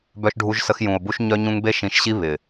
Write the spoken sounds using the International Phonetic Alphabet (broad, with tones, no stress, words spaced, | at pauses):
bœ˦ʃɖʱu˦ʒsə˦x jũ˨o̯bu˦ʃ ɲœ˦ɲũ˦ŋ be˦ʃĩ˨ʃɕi˦ βɪ˨